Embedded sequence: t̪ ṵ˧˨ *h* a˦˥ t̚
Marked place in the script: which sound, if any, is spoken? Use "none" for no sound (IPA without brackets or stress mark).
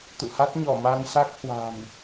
h